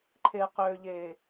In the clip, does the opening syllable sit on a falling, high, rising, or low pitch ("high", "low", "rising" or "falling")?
low